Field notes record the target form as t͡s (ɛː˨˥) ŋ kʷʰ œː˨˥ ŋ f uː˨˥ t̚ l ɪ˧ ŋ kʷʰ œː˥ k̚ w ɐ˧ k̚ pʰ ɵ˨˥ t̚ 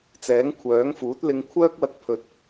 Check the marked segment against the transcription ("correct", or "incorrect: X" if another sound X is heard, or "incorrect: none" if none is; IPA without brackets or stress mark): correct